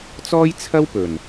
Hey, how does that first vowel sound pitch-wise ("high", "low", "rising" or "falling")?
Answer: high